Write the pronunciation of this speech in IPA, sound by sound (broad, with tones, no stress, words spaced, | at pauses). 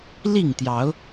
li˥˨ŋt̪jɑ˨˦ʊ̯